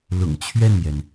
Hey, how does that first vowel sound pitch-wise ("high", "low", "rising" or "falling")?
low